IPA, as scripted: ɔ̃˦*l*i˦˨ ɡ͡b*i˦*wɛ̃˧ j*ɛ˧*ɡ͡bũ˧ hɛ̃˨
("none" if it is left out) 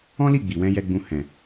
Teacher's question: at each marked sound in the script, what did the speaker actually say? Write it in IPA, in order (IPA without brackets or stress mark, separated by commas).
l, i˨, ɛ˧